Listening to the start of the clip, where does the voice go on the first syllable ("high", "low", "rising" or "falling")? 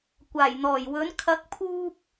low